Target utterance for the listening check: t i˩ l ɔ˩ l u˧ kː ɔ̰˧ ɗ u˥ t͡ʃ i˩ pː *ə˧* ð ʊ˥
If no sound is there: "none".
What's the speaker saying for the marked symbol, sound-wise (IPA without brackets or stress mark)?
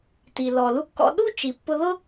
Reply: ʊ˧